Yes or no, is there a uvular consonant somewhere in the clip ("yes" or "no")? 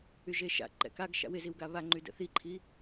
no